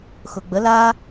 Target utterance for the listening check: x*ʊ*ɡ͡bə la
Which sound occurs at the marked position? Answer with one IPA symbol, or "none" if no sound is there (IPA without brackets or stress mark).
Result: ʊ